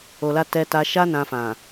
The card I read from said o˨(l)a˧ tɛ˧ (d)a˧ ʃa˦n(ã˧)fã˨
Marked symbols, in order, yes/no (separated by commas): yes, no, yes